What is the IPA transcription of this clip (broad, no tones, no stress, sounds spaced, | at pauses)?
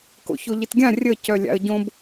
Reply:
k o̰ ç o ʎ ɪ t ɡʲ ã rʲ ə c œ lʲ a̰ ə̯ ɟ õ b